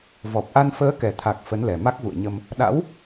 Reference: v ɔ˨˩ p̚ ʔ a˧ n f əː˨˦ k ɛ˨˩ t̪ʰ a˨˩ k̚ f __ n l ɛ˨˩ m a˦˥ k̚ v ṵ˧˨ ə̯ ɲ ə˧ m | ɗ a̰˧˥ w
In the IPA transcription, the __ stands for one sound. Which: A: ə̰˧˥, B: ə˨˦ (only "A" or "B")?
B